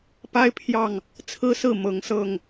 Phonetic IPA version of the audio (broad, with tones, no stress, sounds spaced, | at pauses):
p a˦ ɪ̯ pʰ j ɑ˥˨ ŋ | t͡sʰ ɹ̩˦ s ɹ̩˥˨ m ɤ˨˦ ŋ s ɤ˥˨ ŋ